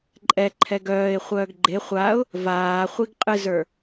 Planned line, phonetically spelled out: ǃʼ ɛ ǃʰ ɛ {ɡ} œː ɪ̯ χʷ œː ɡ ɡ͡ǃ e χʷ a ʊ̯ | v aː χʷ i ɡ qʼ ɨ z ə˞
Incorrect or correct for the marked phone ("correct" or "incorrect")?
correct